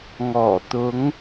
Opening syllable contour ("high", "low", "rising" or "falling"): low